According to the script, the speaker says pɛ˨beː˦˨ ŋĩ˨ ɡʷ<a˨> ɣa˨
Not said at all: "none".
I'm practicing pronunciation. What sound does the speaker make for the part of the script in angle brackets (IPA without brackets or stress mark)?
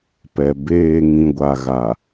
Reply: a˨